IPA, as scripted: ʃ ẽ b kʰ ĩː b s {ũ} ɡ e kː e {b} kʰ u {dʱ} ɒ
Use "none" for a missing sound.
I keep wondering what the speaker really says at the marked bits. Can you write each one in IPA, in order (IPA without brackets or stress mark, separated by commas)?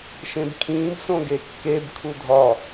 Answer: õ, b, dʱ